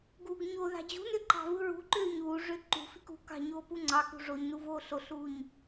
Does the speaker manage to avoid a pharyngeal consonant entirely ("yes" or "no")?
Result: yes